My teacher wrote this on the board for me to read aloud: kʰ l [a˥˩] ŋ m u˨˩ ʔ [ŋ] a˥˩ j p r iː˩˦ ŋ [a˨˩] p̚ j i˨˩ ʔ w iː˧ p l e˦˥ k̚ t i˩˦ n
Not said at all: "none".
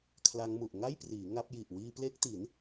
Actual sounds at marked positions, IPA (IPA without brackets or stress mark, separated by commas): a˦˥, ŋ, a˦˥